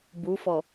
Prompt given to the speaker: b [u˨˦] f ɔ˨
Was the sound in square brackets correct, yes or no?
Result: yes